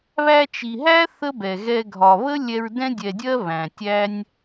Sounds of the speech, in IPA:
β æ˧ t͡ʃ i˨ ɦ æ˦ θ ə˦ b ɛ˨ ɣ ɛ˧ ɡʱ ɒ˨ β ə˦ lʲ ɛ˧ ɹ d ɛ̃˦ dʲ ɛ˨ dʲ ɜ˦ β æ̃˨ tʲ æ˦ nʲ

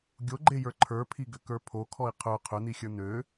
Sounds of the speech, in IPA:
ɡʲ o ɡ͡ǃ e j ə˞ ǃʰ ə˞ pʰ i ɡ ʏ k ə˞ pʰ o kʰ ɔ i̯ qʰ ø qʰ ʏ n̪ i xʲ ə˞ n̪ ø

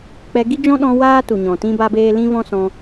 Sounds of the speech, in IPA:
k͡p ɛ˧ ɡ i˦ d͡ʒ ɔ̃˦ ɗ ɔ̃˧ w aː˦ t u˨ ɲ ɔ̃˨ t ĩ˦ b a˦ b eː˦ l ĩ˦ v ɔ̃˦ s ɔ̃˧

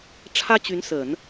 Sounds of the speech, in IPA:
ʈ͡ʂʰ ä˥ t͡ɕ y˧˥ n s ə˨˩˦ n

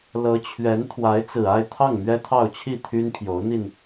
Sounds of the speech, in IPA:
l ɤ˧˥ t͡ɕʰ ɥ ɛ˧˥ n t̪ʰ w a˧˥ ɪ̯ t͡s ɹ̩˨˩ a˥˧ ɪ̯ t̪ʰ ɑ˥˩ ŋ m ɥ ɛ˥ t̪ʰ ɑ˥˧ ʊ̯ t͡ɕʰ i˥˩ t̪ʰ y˥ n pʰ j o˧˥ ʊ̯ n̪ i˧ n

